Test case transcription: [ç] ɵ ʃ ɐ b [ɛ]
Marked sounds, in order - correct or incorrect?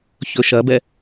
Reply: correct, correct

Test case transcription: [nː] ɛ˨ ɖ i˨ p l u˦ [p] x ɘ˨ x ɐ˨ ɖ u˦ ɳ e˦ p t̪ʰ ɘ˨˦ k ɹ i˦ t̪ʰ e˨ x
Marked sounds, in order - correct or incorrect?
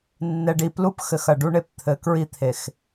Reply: correct, correct

